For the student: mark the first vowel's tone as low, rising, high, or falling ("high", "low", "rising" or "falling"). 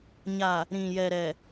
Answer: low